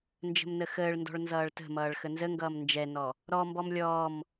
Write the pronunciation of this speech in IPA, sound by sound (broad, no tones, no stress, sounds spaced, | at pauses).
n d͡ʒ ə̤ m n ə x əː ɭ n d ɔ̤ ɭ n z ʌː ɭ t ə̤ m ʌː ɭ x ə n z ə ŋ ɡ ʌː m n d͡ʒ ɛ n ɔ | ɾ ɔ m b ɔ m lʲ ɔː m